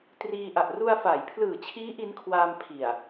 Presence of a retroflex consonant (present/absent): absent